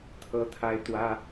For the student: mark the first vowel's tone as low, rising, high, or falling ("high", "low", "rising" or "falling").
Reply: high